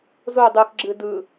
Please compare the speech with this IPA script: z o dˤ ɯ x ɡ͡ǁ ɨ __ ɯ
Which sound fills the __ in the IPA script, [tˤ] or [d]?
d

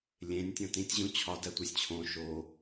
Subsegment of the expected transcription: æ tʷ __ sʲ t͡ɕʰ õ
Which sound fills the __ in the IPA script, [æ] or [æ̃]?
æ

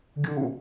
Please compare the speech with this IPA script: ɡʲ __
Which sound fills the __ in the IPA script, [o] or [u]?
u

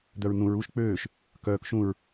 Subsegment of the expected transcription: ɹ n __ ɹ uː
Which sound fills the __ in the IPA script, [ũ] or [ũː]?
ũ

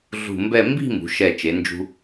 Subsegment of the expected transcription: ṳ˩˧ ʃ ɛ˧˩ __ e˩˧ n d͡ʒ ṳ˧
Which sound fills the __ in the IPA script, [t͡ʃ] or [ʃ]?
t͡ʃ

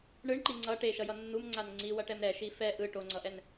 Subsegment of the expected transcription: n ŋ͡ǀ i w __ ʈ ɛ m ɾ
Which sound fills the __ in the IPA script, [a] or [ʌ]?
ʌ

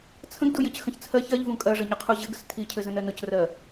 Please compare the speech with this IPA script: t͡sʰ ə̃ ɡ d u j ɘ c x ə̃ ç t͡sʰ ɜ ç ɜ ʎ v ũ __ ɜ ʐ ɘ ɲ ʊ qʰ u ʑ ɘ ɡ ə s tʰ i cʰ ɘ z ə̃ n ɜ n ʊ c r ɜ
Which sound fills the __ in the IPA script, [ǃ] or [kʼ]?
kʼ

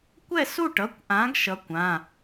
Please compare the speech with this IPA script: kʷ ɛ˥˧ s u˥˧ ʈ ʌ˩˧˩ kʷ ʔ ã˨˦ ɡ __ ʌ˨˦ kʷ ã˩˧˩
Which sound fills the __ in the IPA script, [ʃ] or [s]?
ʃ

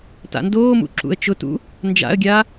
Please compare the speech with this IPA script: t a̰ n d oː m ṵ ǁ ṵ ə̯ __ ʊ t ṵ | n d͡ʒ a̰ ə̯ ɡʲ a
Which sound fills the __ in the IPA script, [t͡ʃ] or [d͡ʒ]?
t͡ʃ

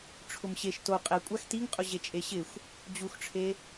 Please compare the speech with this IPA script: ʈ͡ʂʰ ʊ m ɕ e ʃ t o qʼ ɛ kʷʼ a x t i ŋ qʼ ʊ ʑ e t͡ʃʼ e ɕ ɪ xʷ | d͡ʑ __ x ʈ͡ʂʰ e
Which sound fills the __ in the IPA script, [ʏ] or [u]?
u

